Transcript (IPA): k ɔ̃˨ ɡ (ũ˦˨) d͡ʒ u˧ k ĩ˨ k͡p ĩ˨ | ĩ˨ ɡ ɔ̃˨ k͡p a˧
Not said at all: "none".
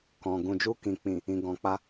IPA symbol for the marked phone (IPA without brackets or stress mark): ũ˨